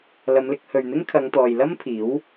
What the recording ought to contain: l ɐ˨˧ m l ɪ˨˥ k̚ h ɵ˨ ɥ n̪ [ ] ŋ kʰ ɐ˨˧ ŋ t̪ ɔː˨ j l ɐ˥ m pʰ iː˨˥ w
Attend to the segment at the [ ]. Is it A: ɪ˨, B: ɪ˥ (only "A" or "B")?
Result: B